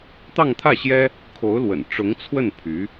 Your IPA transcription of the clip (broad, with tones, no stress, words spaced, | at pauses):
t̪ɑ˥˧ŋt̪ʰä˥˩ɕjɛ˥ | kʰo˧˥ʊ̯lwə̰˨˩nʈ͡ʂʊ˧˥ŋt͡sʰwə˥˩n pʰy˧˥